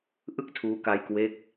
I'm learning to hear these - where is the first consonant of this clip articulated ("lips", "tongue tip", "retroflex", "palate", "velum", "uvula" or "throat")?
throat